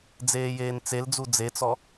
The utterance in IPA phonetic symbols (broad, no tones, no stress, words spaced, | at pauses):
d͡zeːjeːnt͡seld͡zu d͡zet͡sɔ